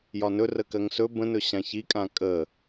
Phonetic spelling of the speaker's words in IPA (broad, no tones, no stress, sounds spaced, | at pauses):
j ɒ n ɵ r ə k ɜ ŋ s ɵ b ə̃ n ɵ ɕ ã ç i kʼ ã kʼ ə